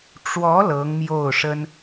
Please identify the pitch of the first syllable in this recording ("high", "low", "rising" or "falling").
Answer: rising